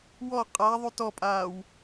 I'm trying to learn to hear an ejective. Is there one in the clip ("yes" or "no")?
yes